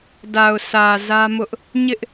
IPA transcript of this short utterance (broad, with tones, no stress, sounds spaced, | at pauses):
d a˨ ʊ̯ sʰ ä˨ z ä˦ m ʊ˦ ʔ | ɲ ɪ˦ ʔ